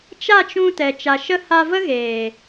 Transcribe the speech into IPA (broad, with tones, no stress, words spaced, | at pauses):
t͡ʃa˦˨t͡ʃũ˧ tɛ˨t͡ʃa˨ʃə˦ ha˧ və˦ɣeː˨